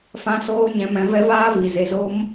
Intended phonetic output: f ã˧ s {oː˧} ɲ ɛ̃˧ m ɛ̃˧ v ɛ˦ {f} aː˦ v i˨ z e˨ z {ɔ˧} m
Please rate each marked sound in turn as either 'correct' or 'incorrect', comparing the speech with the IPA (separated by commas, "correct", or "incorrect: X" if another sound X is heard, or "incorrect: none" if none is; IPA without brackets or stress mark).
correct, incorrect: v, incorrect: o˧